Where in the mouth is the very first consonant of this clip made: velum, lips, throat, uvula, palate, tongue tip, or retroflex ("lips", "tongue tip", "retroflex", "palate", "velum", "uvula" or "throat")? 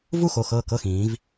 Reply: lips